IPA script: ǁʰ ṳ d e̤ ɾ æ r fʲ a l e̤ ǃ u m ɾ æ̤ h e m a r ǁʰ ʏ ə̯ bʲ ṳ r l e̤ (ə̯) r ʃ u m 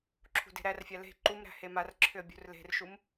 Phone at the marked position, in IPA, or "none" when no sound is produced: none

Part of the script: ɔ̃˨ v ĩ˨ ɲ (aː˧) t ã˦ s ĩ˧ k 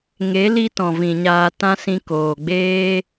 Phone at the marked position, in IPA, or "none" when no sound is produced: aː˧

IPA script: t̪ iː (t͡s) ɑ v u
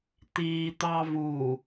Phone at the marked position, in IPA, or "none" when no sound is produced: t̪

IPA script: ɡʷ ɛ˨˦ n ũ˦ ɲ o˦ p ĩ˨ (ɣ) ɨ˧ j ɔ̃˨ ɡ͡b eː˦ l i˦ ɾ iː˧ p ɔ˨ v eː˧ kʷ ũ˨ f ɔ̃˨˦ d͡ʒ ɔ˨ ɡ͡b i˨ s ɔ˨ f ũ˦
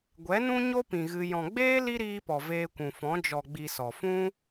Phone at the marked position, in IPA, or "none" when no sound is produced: ɣ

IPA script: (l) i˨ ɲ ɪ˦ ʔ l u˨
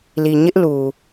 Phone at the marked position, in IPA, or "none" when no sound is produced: l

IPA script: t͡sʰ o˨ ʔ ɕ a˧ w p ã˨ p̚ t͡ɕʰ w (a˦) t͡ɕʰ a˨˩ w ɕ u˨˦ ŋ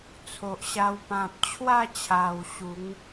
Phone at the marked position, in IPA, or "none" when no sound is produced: a˥˧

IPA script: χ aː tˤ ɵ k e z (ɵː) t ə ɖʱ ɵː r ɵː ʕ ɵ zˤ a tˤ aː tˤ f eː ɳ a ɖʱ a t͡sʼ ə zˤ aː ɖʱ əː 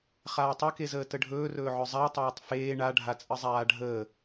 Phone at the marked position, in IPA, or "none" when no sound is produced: əː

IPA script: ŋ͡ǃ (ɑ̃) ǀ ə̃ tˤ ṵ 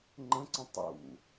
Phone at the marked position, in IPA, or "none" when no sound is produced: ə̃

